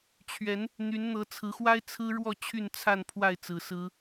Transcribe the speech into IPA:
t͡ɕʰɥɛ˨˦n | n̪y˨˦nn̪ɤ˨˦t͡sʰɹ̩˨˦xwa˦ɪ̯ t͡sʰɹ̩˦ɻwɔ˥˨ t͡ɕʰy˥˨nt͡sʰa˥˨n pʰwa˥˨ɪ̯ t͡sɹ̩˨˩sɹ̩˦

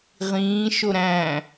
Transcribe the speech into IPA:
ʁĩːʃo ɾæ̃

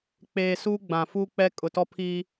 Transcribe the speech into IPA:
k͡peː˨ suː˦ɡ͡bã˨fu˦k͡pɛ˦ kʼʊ˨tɔ˦pʰi˦

